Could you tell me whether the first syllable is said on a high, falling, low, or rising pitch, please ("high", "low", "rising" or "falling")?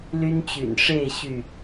high